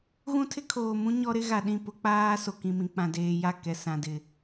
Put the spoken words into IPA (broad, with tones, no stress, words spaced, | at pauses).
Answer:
ɣũ˦tʰɪ˦kʰoː˨mũ˦ ɲɔ˦ɾɪ˦ ɣa˨ɗĩ˦˨ pʊ˦k͡paː˦ so˨kĩ˨mĩ˨ k͡pã˨deː˨ja˦˨ kɛ˨sã˨ dɪ˨